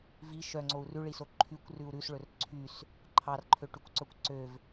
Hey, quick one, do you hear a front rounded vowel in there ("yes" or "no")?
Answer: yes